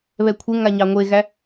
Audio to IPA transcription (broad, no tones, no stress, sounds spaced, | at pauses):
β ɛ kʷʰ e ŋ a ɲ ɑ ŋʷ e ɣ æ